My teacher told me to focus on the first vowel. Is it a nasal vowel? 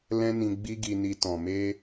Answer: yes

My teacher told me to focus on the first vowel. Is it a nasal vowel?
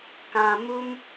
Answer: yes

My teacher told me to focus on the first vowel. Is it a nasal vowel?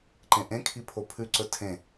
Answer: yes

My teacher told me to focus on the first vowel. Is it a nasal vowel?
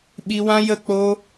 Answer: no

